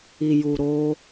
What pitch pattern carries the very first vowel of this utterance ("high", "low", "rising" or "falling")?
low